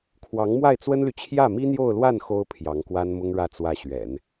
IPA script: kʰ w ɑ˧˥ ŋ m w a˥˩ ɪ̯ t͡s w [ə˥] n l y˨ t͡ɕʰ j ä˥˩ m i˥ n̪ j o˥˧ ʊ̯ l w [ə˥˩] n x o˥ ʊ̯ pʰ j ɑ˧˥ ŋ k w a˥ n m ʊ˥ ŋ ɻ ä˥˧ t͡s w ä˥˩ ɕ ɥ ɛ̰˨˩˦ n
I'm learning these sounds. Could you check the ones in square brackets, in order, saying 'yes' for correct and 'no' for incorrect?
yes, no

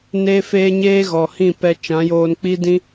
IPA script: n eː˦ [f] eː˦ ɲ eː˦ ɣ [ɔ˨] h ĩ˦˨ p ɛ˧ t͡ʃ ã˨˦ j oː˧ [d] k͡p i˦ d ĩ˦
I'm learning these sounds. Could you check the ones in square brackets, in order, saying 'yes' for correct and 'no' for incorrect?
yes, yes, no

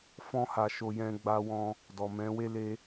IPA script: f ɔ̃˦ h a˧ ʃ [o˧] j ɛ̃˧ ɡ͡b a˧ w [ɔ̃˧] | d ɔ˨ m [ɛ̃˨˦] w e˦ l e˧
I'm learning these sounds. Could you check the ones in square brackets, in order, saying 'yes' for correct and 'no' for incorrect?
yes, yes, yes

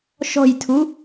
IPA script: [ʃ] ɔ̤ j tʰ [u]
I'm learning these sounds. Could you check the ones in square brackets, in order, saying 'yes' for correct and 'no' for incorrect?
yes, yes

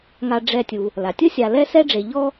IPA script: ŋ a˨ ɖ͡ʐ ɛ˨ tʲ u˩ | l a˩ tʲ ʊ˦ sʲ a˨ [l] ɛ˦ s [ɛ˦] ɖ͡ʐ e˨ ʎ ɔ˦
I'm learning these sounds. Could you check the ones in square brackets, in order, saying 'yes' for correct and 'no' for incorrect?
yes, yes

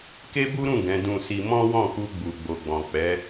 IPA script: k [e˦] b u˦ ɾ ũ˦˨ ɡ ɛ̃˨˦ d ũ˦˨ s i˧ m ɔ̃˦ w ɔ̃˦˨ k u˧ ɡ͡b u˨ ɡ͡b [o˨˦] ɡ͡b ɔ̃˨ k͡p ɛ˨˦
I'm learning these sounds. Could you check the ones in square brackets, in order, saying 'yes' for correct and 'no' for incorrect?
yes, no

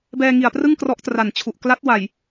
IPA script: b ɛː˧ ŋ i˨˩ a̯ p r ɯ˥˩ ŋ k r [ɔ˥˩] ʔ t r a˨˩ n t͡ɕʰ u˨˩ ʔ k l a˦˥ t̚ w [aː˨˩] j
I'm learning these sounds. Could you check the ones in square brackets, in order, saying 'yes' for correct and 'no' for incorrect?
no, no

